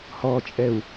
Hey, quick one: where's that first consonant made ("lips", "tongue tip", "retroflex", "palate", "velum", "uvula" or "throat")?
throat